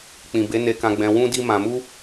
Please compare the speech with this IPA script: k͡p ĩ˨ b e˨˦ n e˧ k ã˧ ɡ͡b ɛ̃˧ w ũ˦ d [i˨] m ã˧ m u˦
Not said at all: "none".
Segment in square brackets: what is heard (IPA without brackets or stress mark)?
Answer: i˦